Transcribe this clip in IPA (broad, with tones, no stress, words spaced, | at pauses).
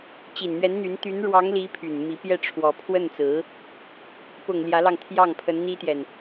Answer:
t͡ɕi˨˩nn̪ɥɛ˧˥nn̪y˧˥n t̪y˧˥nɻwɑ˧˥ŋli˧˥ pʰy˨˩n mi˧˥ pjɛ˥˩ʈ͡ʂʰwɔ˧˥ pʰwə˥˩nt͡sɹ̩˧˥ | pʊ˨˩ŋ ljä˧˥lɑ˧ŋt̪ʰjɑ˥˩ŋ pʰə˧˥nn̪i˥t̪jɛ˨n